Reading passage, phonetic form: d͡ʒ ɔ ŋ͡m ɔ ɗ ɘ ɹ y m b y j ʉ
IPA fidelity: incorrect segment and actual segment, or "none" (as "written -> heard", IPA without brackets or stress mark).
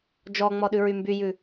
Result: ɘ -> ʉ